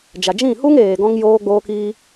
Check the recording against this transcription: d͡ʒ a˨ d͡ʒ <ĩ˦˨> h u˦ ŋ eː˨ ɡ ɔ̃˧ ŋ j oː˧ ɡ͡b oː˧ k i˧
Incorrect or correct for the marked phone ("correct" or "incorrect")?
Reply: correct